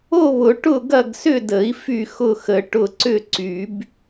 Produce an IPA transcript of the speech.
o˥˨βʊ˨˩˦ ʈʊ˥˨ɡɐ˥˨ɡ sʏ˥˨də˨˩˦i̯ fy˥˨ xʊ˥˨xə˨˩˦ ʈʊ˥˨ ǀʏ˥˨ǀy˨˩˦b

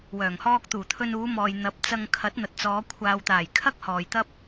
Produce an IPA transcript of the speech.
wœː˨˩ŋhɔː˧k̚t̪uː˨˩ t̪ʰɵ˧nuː˨˧mɔː˨j n̪ɐ˨˥p̚t͡sɐ˧ŋ kʰɐ˨˥t̚n̪ɐ˨t̚t͡sɔː˨˧ kʷʰaː˨wt̪aː˨˩j kʰɐ˥k̚hɔː˨j t̪ɐ˥p̚

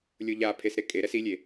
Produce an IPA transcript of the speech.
lʲoʎapʰesɾe kʼeɾɛs ilʲe

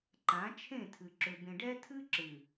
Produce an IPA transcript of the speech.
ǃã˨˦t͡ʃʰẽ˦˨tʰɨ˨ ǁʏ˨bẽ˨ɖɛ˦ tʰɨ˦ ǁɨ˨

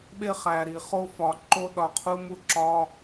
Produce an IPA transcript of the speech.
ɓe˧χæ˨ɾi˨ χo˧fɒ˨ ǃo˦ɗɒ˧qʰu˦mu˦ ǁɒ˦

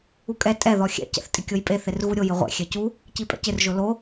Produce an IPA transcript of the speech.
ukʼɛ tʼɛ ðɔxʲɛ̰ cɛ̰θtʼɪkʲojpʼe θerɣuɾʲo jɪʁʷɛ̰ xʲɛcu | cipʼɛ̰cɪr ʒʊlo

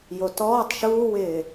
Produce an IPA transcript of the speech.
jotɔːtˤ ʃuːwɪː

